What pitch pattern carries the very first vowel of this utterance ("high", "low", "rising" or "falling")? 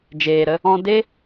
low